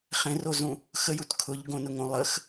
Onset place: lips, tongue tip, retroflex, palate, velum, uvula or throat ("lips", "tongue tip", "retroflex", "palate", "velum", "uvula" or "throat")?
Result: uvula